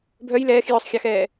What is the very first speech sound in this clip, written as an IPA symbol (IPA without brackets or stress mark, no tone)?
bʱ